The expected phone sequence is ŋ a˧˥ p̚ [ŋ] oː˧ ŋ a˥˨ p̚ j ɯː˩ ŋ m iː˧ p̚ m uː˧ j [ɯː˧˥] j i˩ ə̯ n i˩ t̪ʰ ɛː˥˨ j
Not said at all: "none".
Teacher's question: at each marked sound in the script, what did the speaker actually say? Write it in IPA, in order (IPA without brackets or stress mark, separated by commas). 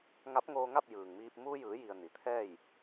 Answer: ŋ, ɯː˩˧